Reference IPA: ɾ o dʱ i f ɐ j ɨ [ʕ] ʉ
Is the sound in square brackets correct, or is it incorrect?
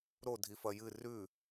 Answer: incorrect